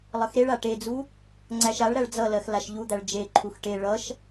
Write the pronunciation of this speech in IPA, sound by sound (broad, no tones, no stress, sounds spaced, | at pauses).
lˠ ʌ x ɾ e ɭ a ʈ e d͡z u | ŋ͡ǀ æ ʃ a ɭ ɾ æ ɭ d͡z ʌ l ɜ x l a ʃ ʎ u d̪ æ ɭ d͡ʒ e ǃʰ u x ʈ e ɭ ʌ ʃ